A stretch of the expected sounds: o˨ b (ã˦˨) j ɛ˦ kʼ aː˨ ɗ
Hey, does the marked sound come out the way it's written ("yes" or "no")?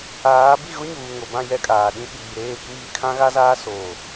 yes